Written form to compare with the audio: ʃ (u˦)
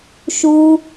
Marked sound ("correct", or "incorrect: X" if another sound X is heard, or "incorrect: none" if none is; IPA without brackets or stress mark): correct